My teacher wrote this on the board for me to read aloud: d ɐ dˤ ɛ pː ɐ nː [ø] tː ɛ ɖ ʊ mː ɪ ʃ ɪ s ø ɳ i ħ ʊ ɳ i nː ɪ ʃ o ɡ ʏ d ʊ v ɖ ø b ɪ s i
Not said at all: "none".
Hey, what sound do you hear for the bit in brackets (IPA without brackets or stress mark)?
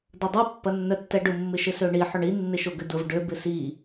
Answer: œ